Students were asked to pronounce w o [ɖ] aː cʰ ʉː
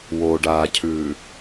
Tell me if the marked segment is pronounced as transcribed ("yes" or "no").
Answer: yes